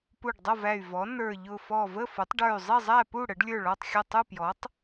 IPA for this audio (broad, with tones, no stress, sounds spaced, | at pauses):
p u˧˩ ɖ dˤ ʌ˥˨ v æ˧˩ y̯ v ɔ˩˥ n ə˞˧˩ ʎ ʊ˧˩ f ɔ˧˩ v ə˥˨ f ʊ˩˥ tˤ ɖ ə˞˧˩ y̯ zˤ i˥˨ zˤ æ˥˨ p u˥˨ ɽ ə˩˥ ɖ lʲ ə˞˥˨ ɭ ɔ˥˨ tˤ xʲ ʌ˥˨ tˤ u˥˨ p j ɔ˩˥ tˤ